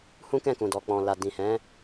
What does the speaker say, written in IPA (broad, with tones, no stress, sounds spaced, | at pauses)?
h ũ˦ k ɛ̃˦˨ k ũ˨ d ɔ˨ k͡p ɔ̃˨ l a˨ d ĩ˨ h ɛ̃˨˦